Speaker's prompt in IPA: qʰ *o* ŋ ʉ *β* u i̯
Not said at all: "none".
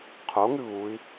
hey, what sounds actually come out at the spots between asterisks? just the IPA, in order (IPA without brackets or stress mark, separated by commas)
o, β